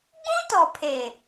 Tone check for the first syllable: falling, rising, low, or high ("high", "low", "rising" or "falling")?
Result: high